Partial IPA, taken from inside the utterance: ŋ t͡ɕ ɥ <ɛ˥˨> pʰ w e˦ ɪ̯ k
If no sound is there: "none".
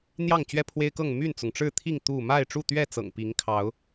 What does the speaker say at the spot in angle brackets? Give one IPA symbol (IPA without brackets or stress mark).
ɛ˥˨